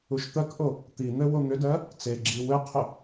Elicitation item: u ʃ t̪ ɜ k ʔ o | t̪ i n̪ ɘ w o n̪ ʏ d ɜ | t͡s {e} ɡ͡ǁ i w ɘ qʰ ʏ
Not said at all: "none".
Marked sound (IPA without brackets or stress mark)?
e